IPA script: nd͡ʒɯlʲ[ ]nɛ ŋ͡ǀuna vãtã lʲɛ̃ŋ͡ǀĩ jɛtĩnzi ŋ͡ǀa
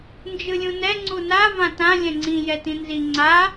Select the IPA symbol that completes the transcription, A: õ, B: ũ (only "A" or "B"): B